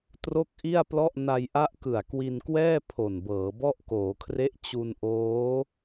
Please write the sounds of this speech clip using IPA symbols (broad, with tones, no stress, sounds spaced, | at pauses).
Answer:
t r o˥˩ k̚ ʔ i˥˩ a̯ p l ɔ˥˩ ʔ n a˧ j ʔ a˦˥ ʔ k ɯ˨˩ a̯ k w i˧ n k w ɛː˥˩ pʰ o˨˩ n b ɤː˩˦ b ɔ˥˩ ʔ k oː˩˦ kʰ r e˦˥ ʔ t͡ɕ u˧ n ʔ oː˦˥